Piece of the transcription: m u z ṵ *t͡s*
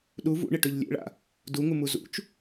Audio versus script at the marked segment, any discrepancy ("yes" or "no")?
yes